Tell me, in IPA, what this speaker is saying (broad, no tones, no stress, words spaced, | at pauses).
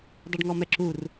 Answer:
dˤeɖŋɔmɛǁur